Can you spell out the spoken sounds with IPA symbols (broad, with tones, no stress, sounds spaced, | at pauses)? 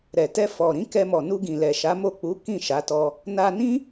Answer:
ɾ ɛ˨ t ɛ˧ f ɔ˨ ɾ ĩ˨˦ k ɛ˧ m ɔ˨ n u˧ ɡ ĩ˨ l ɛ˨ ʃ a˨˦ m o˦˨ k͡p u˨˦ k ĩ˦˨ ʃ a˨˦ t ɔ˧ | n a˧ n ĩ˦